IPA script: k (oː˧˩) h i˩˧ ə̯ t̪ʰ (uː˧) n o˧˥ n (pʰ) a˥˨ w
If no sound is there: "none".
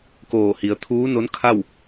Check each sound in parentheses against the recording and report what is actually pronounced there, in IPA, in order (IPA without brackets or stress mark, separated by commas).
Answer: oː˧˩, uː˧˥, kʰ